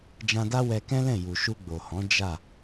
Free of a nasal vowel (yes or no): no